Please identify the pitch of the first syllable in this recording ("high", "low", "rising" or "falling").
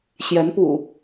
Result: rising